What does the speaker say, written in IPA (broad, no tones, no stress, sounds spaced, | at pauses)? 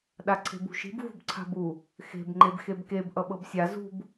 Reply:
ɗ a ǀʰ e̤ b ṳ ʃ i̤ b v ṳ b ǀʰ a̤ b u | x e̤ b ŋ͡ǃ e b x e b k e b ʔ ʌ ɓ ɤ b sʲ a z ṳ b